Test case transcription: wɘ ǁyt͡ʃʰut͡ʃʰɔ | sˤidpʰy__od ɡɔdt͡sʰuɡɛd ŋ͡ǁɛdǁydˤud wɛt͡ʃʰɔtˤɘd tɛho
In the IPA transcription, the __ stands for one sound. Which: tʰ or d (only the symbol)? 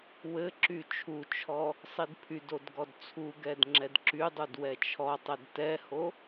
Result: d